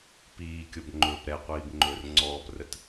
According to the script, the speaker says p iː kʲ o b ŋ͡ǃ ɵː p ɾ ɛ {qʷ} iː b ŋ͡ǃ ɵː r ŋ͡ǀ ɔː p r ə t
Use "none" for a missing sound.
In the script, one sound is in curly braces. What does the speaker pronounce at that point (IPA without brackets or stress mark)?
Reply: qʷ